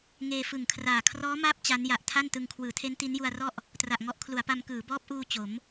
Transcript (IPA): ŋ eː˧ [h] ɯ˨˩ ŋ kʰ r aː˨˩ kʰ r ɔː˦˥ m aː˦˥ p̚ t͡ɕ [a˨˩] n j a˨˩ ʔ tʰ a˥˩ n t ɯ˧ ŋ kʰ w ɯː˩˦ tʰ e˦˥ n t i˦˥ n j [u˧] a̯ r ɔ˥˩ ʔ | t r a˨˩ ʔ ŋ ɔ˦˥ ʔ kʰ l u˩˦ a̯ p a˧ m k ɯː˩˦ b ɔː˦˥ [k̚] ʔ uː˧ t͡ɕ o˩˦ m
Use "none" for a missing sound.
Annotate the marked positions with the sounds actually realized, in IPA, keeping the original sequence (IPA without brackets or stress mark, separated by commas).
f, a˦˥, u˧, p̚